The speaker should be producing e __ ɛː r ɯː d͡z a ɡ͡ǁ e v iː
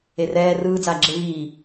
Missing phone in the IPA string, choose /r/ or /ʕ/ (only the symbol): r